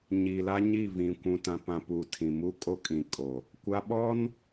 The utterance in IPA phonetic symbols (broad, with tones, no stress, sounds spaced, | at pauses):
ɲ iː˨ l a˦ ɲ i˦˨ v ĩ˨ kʷ ũ˨ t ã˨ p ã˨ p uː˨ tʰ ĩ˨ m u˦ kʼ o˦ kʼ ĩ˨ kʼ o˨ | kʷ a˦ ɓ ɔ˦ n